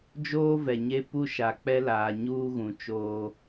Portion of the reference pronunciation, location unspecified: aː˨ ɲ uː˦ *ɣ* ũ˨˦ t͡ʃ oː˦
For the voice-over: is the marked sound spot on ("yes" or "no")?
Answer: yes